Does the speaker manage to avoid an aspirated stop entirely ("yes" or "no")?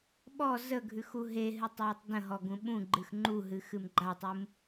yes